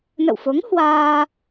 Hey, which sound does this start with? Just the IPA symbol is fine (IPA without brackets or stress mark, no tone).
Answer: n